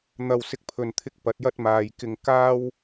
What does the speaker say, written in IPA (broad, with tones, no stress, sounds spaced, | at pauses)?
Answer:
n̪ ɐ˧ w s ɪ˧ k̚ pʰ ɵ˨ n t̪ʰ ɪ˧ k̚ p ɐ˨˥ t̚ j ɐ˥ t̚ m aː˨ j k ɪ˧ ŋ k aː˥ w